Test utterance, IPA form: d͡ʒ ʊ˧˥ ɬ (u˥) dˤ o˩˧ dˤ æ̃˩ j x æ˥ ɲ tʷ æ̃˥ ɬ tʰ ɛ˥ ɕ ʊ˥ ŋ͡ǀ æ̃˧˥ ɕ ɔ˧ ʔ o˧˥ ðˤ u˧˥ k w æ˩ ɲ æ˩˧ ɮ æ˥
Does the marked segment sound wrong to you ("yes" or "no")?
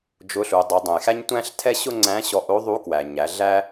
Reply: yes